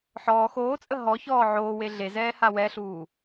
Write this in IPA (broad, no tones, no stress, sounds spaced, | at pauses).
ħ ɔː x oː t͡sʼ ə ɦ ɔ ç ɔː ʕ oː w e ɮ e z ɛː h a w ɛ ɬ uː